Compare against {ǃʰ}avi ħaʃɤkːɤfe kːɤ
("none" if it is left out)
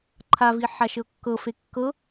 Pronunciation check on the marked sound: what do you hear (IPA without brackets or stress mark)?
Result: ǃʰ